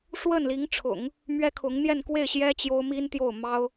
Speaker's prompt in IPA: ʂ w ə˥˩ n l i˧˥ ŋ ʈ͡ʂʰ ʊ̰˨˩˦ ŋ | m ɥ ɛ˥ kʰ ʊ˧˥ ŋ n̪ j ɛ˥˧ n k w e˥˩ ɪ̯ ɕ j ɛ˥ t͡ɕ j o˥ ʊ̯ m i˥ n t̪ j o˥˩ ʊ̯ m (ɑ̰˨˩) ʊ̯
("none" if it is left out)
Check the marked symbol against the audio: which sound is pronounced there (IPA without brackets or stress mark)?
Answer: ɑ˥